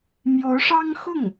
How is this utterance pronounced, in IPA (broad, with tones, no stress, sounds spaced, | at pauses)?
m j o˧˥ ʊ̯ ʂ ɑ˥ ŋ x ʊ˥˩ ŋ